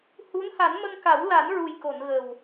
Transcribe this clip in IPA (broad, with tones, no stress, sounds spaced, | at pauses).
h u˧˥ n h a˨˩˦ n m ə˧ ŋ k a˨˩˦ w l a˨˩˦ n ɹ u˨˩ j k o˨˩˨ n ɣ ə˨˩ w